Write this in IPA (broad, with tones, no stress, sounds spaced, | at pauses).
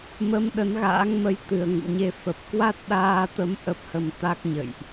m ə˧ m ɗ ə˨˦ n ɣ a̰ː˧˥ ŋ m ə˧ j t̪ ɨ˨˩ ə̯ ŋ ṵ˧˨ ɲ e˧ f ə˨˩ p̚ k w a˦˥ t̚ ɗ aː˧ t̪ ə˧ m ʔ ə˦˥ p̚ h ə˧ m t̪ a˦˥ k̚ ɲ ə̰˧˨ j ʔ